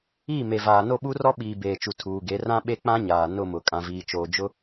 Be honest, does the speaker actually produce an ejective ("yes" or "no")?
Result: yes